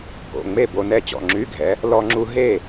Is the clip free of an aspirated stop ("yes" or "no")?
yes